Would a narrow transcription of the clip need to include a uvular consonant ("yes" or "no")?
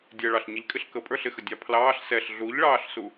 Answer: no